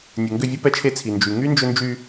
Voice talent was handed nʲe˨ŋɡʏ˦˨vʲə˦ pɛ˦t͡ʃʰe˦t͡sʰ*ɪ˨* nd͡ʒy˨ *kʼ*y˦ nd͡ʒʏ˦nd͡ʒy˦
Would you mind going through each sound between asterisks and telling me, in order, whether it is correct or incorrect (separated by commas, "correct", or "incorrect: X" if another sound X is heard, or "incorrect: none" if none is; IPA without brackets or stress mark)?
incorrect: i˨, incorrect: ŋ